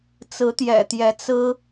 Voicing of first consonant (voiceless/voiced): voiceless